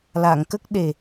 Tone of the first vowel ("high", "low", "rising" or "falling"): low